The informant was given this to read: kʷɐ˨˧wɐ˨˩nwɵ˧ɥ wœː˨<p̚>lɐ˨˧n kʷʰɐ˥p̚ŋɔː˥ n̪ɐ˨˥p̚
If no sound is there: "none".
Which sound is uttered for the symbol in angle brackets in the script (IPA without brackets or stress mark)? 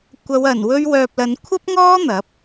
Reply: p̚